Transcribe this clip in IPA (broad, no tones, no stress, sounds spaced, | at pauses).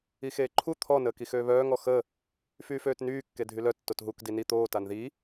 i x eː ǃʰ u t̪ʰ ɔ n əː k i x øː β œː ŋ ɔ x ə | f yː f øː t n yː kː e dʱ y l œ tː o t ɦ u k d i n i t̪ oː t a n ð i